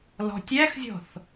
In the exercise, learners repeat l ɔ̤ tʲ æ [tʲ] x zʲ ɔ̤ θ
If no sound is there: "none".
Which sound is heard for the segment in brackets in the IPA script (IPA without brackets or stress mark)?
none